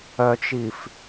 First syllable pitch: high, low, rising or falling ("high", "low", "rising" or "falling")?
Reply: low